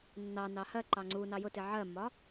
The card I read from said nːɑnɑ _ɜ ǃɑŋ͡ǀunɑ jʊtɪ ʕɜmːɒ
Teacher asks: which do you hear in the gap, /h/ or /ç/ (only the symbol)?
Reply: h